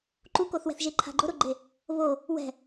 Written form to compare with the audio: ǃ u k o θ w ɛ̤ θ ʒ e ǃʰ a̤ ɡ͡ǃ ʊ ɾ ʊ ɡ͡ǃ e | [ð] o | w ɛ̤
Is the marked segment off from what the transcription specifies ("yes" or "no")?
yes